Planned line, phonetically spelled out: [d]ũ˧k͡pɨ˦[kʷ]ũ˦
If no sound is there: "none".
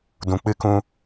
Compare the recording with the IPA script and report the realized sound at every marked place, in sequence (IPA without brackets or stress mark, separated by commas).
d, k